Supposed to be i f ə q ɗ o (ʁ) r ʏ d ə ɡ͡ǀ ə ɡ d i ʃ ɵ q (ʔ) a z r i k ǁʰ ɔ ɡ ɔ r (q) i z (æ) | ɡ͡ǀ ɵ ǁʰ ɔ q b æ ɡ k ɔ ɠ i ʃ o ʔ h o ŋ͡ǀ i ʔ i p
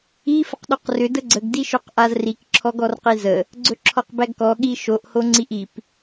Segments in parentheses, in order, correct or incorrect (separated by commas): incorrect, correct, correct, incorrect